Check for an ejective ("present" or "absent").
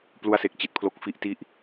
absent